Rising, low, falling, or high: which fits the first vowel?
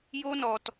high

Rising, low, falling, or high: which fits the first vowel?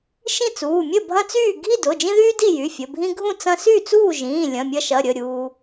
falling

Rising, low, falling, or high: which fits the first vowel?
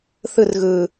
falling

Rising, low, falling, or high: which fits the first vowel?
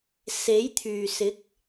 rising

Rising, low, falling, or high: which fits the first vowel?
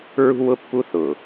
high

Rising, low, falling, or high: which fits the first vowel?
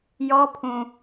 high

